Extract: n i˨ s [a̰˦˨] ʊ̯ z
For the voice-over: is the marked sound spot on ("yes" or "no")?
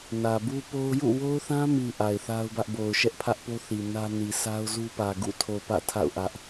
no